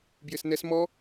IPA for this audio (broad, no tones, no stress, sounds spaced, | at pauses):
b j ɪ s n ɛ s m ɔ